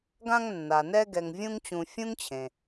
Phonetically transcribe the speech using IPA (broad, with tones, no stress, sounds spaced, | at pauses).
ɡ ã˦ ŋ nː a˩ n ɛ˦ ɡ ɛ˨ ŋ vʲ ũ˦ ŋ t͡ɕ ũ˨ fʲ ũ˥ ŋ t͡ɕʰ ẽ˩